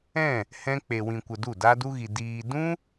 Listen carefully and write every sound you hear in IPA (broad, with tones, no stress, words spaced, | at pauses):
ɛ̃˦˨ | hɛ̃˦ k͡pe˧wĩ˧kʷə˧du˦˨ da˦du˦ɣi˧ diː˧ dũ˦